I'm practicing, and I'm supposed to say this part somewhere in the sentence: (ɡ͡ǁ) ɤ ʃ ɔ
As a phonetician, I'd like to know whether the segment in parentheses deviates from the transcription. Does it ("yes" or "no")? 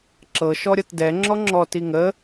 yes